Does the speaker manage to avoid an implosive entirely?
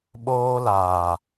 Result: no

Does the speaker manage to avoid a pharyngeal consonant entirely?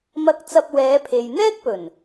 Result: yes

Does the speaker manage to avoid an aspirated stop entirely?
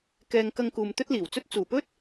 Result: yes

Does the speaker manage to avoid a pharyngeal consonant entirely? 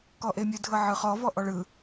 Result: no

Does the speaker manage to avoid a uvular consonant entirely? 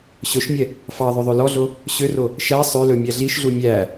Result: yes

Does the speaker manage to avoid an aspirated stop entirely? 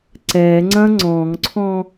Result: no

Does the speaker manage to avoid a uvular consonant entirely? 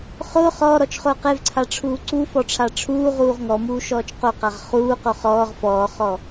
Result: no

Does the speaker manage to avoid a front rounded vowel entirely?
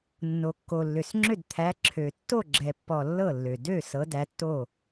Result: no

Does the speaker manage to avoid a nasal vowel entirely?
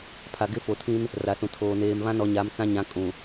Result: no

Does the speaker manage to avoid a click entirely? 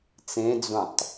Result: yes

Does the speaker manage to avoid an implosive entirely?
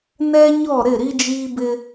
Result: yes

